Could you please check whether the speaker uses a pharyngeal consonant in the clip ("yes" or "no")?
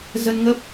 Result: no